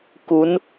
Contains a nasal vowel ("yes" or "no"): no